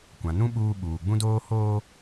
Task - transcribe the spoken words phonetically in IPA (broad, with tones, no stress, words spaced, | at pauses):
kʷã˨nũ˦ ɓuː˦ ɓuː˨ ɡ͡bũ˦doː˦ hoː˦